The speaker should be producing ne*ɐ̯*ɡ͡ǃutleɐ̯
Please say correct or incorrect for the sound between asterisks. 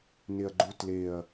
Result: correct